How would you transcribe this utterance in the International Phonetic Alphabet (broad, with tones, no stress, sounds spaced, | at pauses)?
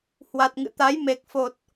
h w a˨˩ t̚ ŋ ɨ̰˧˨ t̪ a˨˦ j m e˨˩ k̚ f o˨˩ t̚